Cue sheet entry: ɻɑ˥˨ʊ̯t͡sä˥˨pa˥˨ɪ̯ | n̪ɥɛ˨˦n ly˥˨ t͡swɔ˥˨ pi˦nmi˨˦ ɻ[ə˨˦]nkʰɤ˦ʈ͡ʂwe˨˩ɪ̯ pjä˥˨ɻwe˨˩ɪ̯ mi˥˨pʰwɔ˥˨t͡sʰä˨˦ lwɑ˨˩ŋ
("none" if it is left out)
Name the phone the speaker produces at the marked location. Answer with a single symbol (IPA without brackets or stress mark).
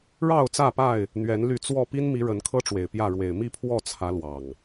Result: ə˨˦